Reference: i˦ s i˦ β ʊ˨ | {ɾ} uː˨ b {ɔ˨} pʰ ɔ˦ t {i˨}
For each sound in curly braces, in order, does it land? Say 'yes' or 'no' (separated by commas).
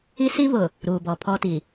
yes, yes, yes